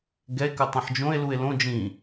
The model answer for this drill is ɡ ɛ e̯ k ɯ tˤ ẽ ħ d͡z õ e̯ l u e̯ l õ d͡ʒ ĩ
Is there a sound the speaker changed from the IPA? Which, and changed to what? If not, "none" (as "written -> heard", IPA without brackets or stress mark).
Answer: d͡z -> d͡ʒ